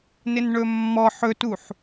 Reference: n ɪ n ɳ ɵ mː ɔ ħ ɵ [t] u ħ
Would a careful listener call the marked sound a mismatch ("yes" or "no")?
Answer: no